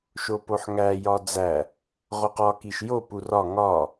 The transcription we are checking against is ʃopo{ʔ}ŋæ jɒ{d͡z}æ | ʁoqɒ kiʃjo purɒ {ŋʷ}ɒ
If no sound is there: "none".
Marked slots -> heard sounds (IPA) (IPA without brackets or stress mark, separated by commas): ħ, d͡z, ŋ